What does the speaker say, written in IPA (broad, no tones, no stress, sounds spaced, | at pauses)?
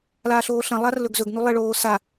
l aː ɬ oː ɬ ɐ̃ lˠ a r l ɵ ɡ z ɵ ɡ n u lˠ e ɭ oː s a